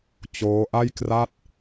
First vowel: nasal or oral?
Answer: oral